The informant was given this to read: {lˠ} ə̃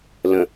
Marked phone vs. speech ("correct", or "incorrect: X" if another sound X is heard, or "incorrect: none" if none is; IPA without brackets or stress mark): incorrect: l